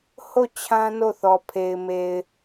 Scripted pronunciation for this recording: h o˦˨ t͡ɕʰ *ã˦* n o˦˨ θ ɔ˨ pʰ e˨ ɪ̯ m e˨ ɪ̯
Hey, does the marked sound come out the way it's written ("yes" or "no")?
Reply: yes